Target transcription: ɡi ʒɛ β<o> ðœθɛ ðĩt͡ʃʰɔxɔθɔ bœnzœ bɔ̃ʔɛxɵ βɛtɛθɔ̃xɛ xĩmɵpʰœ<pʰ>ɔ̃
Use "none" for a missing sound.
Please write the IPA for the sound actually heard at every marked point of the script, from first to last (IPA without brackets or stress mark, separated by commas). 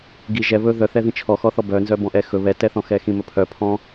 ɵ, pʰ